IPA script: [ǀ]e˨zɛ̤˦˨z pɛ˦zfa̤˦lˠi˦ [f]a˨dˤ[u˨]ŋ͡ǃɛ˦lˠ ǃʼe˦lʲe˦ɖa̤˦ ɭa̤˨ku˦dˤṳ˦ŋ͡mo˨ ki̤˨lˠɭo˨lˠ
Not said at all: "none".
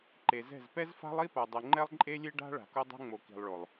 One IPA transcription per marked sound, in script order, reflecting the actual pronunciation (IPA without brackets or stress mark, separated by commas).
ǃ, p, u˨